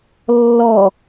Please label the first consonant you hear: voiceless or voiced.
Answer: voiced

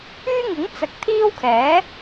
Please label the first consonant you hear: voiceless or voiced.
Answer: voiced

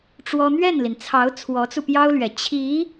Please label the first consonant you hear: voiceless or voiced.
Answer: voiceless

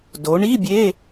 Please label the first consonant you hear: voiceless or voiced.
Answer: voiced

